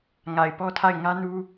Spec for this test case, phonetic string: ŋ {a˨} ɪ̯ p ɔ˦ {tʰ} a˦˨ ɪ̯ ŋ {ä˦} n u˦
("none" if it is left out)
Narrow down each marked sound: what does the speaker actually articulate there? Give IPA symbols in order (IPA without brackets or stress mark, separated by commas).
a˨, tʰ, ä˦